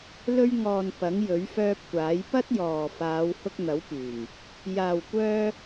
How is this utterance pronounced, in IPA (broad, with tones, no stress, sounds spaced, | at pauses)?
l ɵ˧ ɥ ŋ ɔː˨ n p ɐ˨˥ ŋ j ɵ˨˥ ɥ f œː˧ p̚ kʷ aː˨˥ j p ɐ˥ t̚ j ɔː˨ f aː˨˧ w h ʊ˧ k̚ n̪ ɐ˨˥ w p yː˨˩ m | j aː˨ w kʷ œː˧